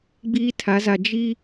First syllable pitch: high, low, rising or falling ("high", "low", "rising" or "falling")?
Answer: high